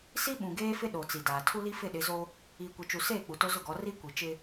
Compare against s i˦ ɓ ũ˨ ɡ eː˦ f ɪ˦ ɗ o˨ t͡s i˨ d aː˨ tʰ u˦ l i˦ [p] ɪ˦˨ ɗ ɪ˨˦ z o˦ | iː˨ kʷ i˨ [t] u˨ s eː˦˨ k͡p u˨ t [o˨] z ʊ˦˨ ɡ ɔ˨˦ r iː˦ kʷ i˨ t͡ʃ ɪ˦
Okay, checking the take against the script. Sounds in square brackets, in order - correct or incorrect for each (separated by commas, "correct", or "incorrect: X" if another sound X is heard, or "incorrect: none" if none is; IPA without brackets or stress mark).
incorrect: f, incorrect: t͡ʃ, incorrect: o˦